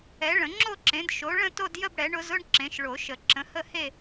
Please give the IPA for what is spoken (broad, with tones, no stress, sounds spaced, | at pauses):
ɛ˩˥ ɭ ə̃˨˩˦ ŋ͡ǁ o˥˧ ǁ ẽ˩˥ d ʃ o˩˥ ɭ ə̃˥˧ t o˥˧ d j ə˥˧ b ɽ ɛ˩˥ ɳ ʊ˩˥ z ʊ˥˧ ɳ ǁ ẽ˩˥ ʃ ɭ o˨˩˦ ʃ ə˨˩˦ ǁ ə̃˩˥ h ə˥˧ h e˥˧